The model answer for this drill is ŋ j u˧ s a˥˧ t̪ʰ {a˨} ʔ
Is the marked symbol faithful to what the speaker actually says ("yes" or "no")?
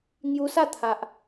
yes